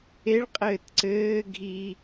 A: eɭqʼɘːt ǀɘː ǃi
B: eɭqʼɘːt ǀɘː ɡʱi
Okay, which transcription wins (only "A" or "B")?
B